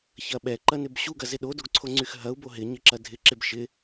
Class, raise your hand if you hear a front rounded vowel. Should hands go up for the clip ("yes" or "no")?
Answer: yes